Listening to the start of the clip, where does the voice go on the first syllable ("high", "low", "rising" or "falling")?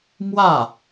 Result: falling